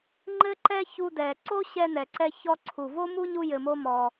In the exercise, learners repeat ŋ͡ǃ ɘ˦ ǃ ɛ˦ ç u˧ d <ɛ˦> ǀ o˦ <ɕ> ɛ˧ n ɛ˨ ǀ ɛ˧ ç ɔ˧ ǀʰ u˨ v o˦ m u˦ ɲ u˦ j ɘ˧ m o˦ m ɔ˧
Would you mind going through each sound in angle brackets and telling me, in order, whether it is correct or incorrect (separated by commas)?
incorrect, correct